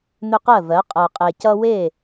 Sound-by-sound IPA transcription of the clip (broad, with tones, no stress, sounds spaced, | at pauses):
n̪ ʏ˦ q ɜ˥˩ v ɜ˩˥ qʼ ɜ˨ qʼ e˨ c ʌ˦ w e˥˩